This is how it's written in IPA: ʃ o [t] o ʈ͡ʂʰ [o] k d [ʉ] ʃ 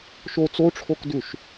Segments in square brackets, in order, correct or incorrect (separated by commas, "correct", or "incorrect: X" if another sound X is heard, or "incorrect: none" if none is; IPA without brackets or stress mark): incorrect: t͡s, correct, correct